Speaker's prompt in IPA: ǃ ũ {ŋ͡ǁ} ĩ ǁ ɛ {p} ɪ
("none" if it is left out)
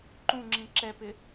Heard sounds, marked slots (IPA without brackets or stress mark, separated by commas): ŋ͡ǁ, p